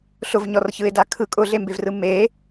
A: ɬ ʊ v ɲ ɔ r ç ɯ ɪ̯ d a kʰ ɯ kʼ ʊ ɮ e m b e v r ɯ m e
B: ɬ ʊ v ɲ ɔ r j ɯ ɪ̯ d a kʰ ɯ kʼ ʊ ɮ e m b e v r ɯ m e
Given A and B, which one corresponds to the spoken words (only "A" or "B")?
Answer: A